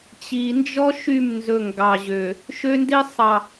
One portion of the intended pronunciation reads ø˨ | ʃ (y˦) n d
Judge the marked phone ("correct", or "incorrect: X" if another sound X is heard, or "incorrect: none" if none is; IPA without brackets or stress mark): incorrect: ø˦